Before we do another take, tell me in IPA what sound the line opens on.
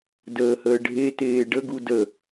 d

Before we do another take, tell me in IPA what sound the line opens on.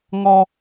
ŋ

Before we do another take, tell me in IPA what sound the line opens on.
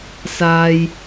s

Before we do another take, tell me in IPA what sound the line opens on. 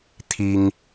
t̪ʰ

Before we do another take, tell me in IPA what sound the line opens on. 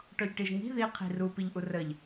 ʈ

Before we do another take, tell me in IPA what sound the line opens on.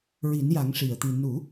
ɹ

